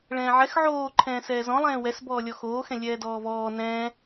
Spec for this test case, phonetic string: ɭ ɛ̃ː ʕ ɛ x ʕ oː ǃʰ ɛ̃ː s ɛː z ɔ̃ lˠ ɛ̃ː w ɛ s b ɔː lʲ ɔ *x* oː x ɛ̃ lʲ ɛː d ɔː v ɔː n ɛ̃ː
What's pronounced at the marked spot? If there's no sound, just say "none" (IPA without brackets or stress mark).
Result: x